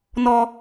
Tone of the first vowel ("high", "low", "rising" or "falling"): high